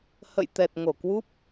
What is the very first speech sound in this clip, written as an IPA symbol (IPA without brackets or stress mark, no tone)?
h